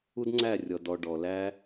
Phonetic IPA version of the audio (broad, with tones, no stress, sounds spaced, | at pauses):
u˦ d ŋ͡ǀ æ˦˨ rʲ ɔ˨ d ɔ˨ ɖ ɔ˨ l æ˦